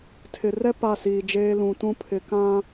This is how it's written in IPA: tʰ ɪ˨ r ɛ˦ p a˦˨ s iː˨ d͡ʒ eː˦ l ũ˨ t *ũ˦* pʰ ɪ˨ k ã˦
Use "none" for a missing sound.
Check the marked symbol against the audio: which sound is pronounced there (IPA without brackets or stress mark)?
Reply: ũ˦